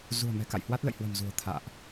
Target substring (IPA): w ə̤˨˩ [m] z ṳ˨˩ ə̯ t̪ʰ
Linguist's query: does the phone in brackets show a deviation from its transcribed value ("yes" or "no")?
no